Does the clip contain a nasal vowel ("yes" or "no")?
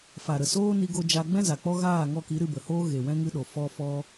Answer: yes